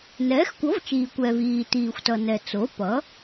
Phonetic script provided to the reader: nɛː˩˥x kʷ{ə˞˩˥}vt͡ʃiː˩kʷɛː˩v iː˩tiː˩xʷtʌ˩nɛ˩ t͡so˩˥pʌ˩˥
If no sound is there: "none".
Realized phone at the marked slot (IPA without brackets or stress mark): ʌ˩˥